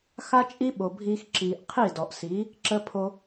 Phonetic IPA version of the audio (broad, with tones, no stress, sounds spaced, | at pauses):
x a˦ t͡ʃʼ i˦ ɓ o˨ bʱ iː˧ x ǁ iː˨ ʔ qʰ i˦˨ d ɔ˨ ʔ s i˨˦ | ǁ ə˧ pʰ o˧